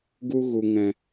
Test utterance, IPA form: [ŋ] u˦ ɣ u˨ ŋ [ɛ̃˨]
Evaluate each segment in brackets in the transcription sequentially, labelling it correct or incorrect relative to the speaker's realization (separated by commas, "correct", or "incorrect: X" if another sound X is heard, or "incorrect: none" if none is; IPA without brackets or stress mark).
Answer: incorrect: ɡ, correct